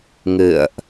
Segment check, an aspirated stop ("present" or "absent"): absent